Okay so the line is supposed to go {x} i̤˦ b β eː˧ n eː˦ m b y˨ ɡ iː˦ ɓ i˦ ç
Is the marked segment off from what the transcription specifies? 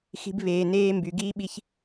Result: no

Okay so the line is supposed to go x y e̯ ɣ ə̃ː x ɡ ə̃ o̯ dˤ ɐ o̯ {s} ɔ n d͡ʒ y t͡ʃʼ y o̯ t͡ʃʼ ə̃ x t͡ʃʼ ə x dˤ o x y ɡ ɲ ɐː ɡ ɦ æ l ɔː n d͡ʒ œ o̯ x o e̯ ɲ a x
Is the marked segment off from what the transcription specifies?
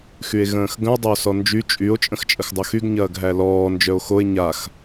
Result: no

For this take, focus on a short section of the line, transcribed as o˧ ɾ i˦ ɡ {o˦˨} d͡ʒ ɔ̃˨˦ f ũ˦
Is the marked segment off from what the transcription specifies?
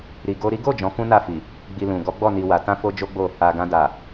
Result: no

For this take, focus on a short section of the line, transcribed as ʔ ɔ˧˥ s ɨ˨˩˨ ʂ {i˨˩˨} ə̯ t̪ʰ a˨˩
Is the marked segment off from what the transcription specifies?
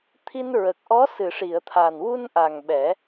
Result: no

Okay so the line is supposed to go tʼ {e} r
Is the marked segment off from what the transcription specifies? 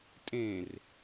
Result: yes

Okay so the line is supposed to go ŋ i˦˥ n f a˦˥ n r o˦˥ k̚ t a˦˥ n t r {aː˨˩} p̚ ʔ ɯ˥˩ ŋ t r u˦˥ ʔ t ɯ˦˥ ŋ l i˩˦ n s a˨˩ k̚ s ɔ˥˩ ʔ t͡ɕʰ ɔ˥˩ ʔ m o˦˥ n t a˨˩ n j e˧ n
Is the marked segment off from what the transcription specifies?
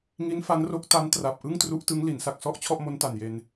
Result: yes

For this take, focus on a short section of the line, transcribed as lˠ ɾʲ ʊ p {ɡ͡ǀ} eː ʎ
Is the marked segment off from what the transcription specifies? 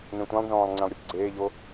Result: no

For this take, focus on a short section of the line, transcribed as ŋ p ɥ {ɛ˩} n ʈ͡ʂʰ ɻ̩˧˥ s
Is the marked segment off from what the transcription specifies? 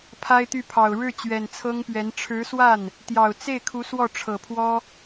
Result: yes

